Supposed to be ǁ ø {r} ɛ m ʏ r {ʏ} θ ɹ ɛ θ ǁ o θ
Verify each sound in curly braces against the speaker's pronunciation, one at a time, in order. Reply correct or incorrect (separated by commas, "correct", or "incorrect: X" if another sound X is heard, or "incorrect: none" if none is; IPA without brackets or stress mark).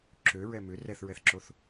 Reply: incorrect: ɹ, incorrect: ɛ